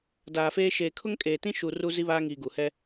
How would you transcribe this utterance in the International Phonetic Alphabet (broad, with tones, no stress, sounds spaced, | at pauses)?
d aː˨ f eː˦ ʃ eː˨ kʰ ʊ˦ ŋ kʼ eː˨ t ĩ˦ ʃ u˨ r u˦ z i˦ β aː˦ ŋ iː˨ ɡ u˨ h ɛ˦